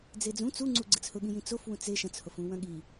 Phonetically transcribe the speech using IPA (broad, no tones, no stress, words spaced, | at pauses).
d͡zed͡zũ t͡suŋ͡ǀu ɡ͡ǀɯt͡shʊɠĩjĩ t͡sof wũt͡se ʃɐ̃t͡shofũ wɐ̃ɠi